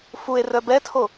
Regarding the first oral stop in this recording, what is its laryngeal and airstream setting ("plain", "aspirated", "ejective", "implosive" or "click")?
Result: plain